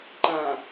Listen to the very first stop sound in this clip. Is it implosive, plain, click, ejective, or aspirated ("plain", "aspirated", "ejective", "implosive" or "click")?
click